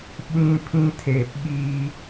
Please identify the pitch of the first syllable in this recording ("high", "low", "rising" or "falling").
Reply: high